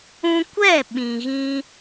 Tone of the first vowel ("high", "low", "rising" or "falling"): high